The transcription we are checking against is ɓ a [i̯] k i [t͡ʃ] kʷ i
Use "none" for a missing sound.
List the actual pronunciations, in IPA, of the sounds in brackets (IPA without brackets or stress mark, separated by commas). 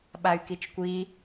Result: y̯, t͡ʃ